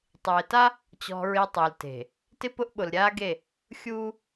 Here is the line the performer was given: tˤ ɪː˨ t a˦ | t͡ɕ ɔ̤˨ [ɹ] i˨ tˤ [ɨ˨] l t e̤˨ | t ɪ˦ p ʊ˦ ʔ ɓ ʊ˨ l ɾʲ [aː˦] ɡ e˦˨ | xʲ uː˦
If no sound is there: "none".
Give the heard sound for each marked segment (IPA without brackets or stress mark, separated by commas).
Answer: ɹ, e˨, aː˦